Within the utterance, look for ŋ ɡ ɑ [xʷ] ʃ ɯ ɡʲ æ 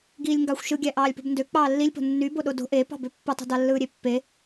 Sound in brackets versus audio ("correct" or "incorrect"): correct